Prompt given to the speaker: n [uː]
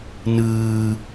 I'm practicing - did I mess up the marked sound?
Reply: yes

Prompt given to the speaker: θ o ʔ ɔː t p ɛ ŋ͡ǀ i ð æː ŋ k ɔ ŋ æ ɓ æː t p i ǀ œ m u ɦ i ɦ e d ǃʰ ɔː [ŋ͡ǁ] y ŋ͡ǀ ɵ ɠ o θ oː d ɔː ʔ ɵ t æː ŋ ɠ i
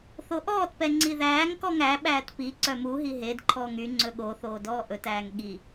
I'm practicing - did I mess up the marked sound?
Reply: yes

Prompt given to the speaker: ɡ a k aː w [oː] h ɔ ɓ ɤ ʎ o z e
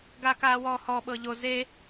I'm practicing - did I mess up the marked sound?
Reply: yes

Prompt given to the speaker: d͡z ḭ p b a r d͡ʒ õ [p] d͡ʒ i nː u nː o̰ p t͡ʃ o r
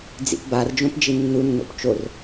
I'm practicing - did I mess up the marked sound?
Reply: no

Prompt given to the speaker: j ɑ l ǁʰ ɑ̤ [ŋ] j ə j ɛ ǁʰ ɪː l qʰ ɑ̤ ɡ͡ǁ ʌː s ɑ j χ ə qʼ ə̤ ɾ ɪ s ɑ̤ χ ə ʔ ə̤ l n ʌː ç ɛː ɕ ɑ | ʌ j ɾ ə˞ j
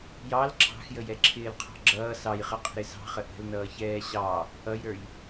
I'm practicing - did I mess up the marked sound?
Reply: yes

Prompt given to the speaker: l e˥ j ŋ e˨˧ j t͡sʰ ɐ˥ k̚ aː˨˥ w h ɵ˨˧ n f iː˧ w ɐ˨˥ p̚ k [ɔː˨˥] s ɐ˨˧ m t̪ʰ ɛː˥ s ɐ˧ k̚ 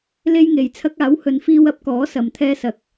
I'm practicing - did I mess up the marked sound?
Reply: no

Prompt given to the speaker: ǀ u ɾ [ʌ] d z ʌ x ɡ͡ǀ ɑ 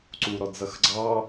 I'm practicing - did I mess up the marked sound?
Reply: yes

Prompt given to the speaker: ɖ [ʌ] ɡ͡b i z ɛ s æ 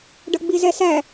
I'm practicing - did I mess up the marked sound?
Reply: no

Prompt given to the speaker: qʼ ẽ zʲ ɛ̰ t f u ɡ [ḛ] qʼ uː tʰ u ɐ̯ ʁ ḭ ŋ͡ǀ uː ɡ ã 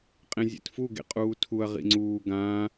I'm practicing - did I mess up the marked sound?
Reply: no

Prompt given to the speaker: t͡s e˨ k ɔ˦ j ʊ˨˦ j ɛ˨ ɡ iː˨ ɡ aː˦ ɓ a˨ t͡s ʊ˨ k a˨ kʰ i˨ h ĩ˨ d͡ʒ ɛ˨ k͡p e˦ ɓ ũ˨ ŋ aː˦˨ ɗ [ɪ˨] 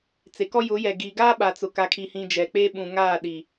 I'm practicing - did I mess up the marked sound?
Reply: yes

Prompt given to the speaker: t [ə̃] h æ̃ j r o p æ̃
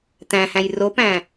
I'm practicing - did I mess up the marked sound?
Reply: yes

